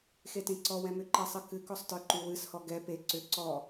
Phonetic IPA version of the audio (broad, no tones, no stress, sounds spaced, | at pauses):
x e t ẽ ǀ ɔ w ɛ̃ m ʏ ǃ ɛ sˤ ɨ k ɨ k ɔ sˤ t ə˞ ǃ y w ɨ s h ɔ ɡ ɛ p e ǀ ʏ ǀ ɔ